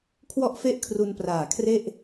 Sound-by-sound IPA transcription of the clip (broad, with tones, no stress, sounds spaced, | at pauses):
kʰ w ɔ˥˩ ʔ f e˥˩ ʔ kʰ r u˧ n p r aː˨˩ kʰ r e˥˩ ʔ